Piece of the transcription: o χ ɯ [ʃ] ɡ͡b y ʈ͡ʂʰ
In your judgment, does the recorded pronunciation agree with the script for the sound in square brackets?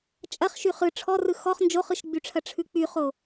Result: yes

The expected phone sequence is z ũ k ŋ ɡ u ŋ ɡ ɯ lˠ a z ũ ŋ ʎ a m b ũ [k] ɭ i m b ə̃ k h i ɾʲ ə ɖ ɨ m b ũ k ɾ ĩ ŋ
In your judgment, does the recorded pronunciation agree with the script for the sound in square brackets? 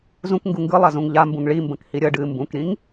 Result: no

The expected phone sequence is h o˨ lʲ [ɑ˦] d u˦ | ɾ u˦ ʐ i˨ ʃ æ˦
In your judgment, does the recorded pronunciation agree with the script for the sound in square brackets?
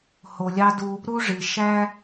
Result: yes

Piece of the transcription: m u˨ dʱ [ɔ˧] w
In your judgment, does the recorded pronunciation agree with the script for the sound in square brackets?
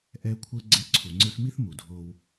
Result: no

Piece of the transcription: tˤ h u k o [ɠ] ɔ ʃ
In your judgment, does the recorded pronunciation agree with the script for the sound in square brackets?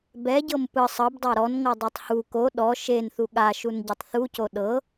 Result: no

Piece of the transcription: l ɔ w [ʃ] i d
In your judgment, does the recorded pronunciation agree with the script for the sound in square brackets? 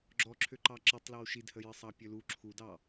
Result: yes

